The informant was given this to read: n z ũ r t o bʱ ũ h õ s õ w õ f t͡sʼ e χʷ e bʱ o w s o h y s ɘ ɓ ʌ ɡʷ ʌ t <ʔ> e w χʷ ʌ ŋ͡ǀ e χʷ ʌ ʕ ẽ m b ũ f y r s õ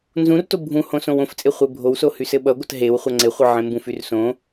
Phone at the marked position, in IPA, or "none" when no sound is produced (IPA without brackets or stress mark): ɦ